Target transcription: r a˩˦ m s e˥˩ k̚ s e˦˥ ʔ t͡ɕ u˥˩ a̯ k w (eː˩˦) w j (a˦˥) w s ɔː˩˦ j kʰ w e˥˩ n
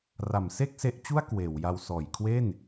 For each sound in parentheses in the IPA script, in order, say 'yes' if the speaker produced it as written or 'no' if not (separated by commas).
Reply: yes, no